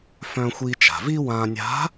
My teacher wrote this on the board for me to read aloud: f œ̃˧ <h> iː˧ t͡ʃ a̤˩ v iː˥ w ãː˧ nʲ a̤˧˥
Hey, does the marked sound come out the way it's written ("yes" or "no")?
no